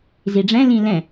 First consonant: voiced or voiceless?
voiced